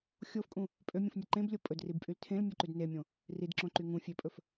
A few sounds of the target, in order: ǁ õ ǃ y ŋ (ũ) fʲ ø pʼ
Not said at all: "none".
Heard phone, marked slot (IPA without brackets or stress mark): ũ